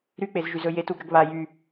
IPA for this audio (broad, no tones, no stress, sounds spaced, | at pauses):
ɾ y k͡p e z ʒ y z ɵ j e t u ɡ ɾ ə ɡ β a j y